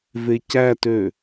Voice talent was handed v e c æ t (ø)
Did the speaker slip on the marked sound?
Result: no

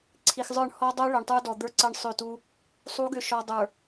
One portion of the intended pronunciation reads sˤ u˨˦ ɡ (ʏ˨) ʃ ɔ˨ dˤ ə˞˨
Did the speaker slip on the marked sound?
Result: no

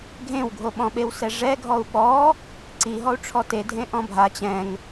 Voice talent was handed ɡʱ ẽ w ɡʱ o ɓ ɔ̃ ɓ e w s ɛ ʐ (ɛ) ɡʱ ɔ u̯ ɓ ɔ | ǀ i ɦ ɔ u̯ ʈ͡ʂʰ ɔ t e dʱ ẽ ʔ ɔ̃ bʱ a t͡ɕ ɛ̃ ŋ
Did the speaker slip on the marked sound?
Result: no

